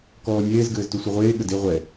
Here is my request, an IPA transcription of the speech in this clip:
k ɔː nʲ eː z ɡ ɘː z t u sʷ ɘ ʁʷ eː ɠ ɘ d e ʁʷ ɛ

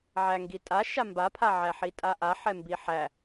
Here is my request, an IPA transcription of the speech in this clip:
ʕ æ ŋ ɡ i tʼ a ʃ a m b a pʰ a ʕ æ ħ i tʼ a ʔ a ħ ɛ m b i ħ æ

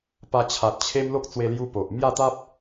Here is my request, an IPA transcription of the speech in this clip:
p a˧ t͡ɕʰ a˨ t̚ t͡ɕʰ e˦ m l o˦ k̚ t͡s w e˧ l j u˧ p o˨ ʔ m j a˥˧ t̪ a˦ p̚

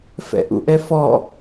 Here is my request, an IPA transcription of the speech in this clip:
f ɛ̰ ʔ ṵ ʔ ɛ f ɔ

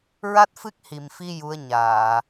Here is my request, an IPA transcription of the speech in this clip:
ɹ a˦˥ t̚ f ɨ˦˥ k̚ h i˨˩ m f i˧ j u˧˥ ə̯ ɲ aː˨˩˨

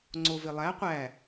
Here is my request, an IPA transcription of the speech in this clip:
ŋ͡ǀ o v e lˠ æ qʷ æ

